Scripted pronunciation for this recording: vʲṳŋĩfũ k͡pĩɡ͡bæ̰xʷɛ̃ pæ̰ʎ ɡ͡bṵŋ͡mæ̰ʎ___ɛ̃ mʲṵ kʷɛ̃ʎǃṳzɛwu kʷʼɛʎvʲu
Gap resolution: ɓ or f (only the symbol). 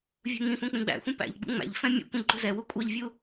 f